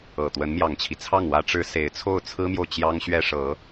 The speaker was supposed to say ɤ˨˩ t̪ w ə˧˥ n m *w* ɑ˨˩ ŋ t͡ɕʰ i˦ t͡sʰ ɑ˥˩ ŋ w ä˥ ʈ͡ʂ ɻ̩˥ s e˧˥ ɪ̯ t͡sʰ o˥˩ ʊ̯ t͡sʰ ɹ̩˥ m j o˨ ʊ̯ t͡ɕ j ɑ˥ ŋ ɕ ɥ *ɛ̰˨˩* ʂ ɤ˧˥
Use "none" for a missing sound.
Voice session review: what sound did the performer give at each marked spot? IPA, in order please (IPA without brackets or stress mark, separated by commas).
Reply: j, ɛ˥